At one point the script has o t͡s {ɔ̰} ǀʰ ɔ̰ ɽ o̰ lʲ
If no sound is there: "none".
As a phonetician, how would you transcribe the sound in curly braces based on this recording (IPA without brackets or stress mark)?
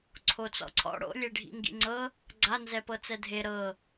ɔ̰